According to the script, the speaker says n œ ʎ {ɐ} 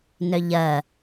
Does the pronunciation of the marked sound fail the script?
no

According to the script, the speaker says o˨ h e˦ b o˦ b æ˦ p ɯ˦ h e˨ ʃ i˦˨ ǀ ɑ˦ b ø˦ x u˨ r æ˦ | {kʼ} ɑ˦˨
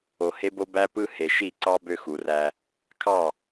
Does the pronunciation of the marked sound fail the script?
yes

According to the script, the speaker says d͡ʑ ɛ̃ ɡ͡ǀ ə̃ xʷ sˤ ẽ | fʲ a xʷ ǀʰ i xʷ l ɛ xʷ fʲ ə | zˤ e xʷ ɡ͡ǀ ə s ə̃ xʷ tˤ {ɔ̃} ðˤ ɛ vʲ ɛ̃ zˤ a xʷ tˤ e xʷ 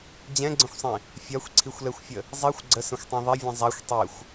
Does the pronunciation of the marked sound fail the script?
yes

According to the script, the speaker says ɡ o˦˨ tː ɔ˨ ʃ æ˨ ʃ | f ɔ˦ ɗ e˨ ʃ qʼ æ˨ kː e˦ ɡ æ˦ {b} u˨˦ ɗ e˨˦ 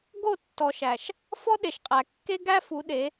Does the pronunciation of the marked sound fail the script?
yes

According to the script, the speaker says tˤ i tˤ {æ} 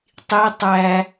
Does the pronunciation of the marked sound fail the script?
no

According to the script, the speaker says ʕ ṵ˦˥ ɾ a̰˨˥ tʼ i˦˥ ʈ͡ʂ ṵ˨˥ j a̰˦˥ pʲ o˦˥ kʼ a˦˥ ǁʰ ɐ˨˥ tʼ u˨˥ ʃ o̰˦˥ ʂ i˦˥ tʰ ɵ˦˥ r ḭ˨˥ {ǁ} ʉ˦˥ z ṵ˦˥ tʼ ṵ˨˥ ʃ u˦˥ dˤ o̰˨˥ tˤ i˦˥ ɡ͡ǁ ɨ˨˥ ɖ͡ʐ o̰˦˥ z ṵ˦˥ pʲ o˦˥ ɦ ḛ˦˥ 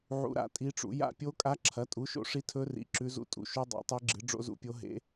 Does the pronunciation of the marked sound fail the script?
no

